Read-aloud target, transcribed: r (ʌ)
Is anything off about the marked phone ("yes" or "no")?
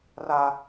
yes